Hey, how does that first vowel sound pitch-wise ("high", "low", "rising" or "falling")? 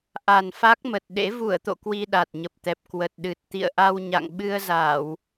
low